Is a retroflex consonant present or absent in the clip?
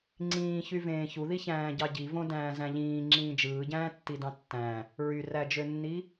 absent